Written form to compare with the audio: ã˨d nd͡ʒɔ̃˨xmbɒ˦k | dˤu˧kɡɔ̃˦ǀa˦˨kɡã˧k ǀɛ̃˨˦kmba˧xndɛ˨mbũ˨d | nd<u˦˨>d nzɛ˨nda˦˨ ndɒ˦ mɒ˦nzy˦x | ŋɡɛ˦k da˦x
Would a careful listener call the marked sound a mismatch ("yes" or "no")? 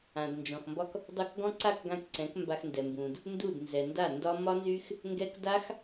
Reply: no